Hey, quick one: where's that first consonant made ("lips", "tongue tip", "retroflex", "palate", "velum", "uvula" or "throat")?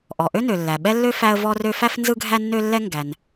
throat